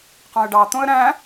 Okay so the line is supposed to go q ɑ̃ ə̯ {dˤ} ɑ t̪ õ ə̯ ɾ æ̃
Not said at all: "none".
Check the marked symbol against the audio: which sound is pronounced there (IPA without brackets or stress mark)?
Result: ɖ